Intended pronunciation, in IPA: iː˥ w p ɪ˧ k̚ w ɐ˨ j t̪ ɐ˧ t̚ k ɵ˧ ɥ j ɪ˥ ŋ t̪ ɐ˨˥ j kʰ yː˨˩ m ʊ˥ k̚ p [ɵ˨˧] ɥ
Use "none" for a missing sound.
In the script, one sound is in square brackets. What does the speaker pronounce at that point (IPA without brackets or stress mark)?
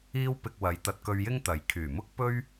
ɵ˥